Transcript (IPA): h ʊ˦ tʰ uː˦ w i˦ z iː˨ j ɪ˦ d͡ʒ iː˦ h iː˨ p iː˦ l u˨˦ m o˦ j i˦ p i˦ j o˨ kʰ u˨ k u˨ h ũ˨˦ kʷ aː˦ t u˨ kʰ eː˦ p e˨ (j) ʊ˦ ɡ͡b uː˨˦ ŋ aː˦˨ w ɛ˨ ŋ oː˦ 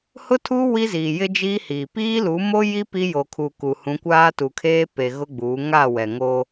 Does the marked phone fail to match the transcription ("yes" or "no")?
yes